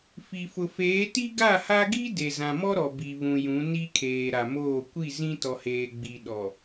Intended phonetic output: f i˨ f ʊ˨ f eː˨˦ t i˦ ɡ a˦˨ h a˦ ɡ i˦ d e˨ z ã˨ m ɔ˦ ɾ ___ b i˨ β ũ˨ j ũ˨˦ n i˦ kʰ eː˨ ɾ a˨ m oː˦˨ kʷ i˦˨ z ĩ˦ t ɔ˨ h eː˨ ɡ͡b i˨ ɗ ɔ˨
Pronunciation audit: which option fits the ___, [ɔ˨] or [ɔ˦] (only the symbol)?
ɔ˨